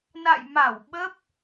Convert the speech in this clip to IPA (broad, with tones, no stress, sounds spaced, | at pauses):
n a̰˧˨ j m a˧˩ w ɓ ə˦˥ p̚